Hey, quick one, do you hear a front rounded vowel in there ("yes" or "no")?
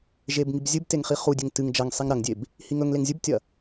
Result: no